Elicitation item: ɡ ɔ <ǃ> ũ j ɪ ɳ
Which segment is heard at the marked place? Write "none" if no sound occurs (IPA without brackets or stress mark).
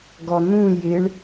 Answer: n̪